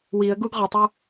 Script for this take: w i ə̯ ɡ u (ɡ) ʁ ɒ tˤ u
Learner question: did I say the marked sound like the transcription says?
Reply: yes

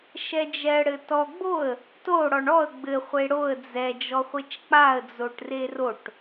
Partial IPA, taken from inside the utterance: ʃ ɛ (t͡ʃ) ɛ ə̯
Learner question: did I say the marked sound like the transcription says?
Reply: no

